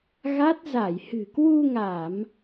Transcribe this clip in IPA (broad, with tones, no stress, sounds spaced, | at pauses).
ɣ a˦˥ t̚ z a˧˩ j h ɨ̤˨˩ k w u˧ ŋ a˧˩˨ m